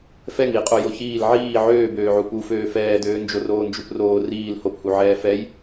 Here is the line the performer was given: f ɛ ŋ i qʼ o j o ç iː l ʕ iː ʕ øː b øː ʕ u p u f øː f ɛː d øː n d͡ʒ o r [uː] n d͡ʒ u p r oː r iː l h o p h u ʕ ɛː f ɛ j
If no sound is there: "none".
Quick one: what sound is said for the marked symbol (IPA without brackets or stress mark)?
oː